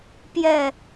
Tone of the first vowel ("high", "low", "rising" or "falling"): falling